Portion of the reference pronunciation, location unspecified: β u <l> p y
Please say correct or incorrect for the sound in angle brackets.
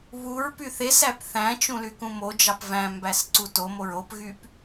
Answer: incorrect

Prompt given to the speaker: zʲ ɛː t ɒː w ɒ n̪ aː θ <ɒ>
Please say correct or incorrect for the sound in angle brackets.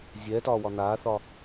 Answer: correct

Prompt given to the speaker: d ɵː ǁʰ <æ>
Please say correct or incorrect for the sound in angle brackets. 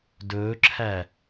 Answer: correct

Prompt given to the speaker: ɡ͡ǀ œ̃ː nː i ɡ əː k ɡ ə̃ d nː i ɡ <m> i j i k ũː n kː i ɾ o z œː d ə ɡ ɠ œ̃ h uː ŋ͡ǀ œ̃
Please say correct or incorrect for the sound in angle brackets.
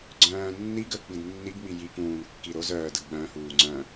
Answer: correct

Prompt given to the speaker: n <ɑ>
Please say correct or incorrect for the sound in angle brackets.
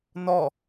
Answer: incorrect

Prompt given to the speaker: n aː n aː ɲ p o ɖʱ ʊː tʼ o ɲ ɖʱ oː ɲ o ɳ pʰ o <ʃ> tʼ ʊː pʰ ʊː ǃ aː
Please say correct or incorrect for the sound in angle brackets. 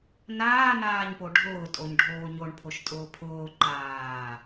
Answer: correct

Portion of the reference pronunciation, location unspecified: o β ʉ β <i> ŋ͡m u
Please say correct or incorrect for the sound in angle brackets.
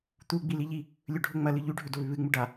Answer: incorrect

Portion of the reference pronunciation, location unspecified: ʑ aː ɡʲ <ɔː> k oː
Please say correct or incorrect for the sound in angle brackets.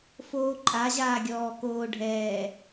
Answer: correct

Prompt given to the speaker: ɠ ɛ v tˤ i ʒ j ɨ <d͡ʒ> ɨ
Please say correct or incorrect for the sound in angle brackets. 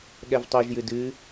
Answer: incorrect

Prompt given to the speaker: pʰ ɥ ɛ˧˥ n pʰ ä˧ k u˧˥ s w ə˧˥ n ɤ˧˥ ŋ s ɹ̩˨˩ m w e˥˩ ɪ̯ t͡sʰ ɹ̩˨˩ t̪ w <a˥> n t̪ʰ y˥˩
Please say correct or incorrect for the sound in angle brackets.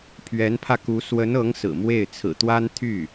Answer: correct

